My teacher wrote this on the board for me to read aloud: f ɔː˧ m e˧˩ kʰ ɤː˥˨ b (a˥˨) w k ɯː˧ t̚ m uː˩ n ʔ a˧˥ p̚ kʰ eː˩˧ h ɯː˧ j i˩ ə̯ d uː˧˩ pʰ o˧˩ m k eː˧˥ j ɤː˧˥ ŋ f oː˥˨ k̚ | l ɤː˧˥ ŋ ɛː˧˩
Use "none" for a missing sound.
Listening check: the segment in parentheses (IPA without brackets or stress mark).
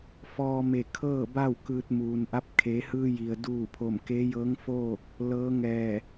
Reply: a˥˨